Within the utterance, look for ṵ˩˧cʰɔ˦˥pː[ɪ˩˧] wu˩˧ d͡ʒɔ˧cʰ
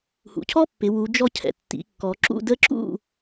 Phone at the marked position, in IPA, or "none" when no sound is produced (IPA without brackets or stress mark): ɪ˩˧